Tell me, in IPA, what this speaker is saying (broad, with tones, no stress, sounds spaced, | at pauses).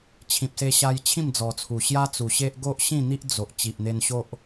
t͡ɕʰ ĩ˨ p̚ s e˧ ɕ a˧ j t͡ɕʰ ĩ˥˧ m d͡z ɔ˨˩ t͡sʰ u˨˩ ɕ j a˦ t͡s u˨˩ ɕ e˦ ʔ ɡ o˦ ʔ ɕ ĩ˥˧ n̪ i˦ ʔ d͡z o˨ ʔ t͡ɕ i˨ ʔ n̪ e˧ n ɕ o˦ ʔ